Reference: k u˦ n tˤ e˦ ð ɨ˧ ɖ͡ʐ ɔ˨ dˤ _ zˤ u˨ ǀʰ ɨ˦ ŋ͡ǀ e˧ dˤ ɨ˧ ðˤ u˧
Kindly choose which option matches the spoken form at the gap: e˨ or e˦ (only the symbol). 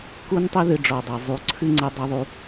e˨